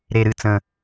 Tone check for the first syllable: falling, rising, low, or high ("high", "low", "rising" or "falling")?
high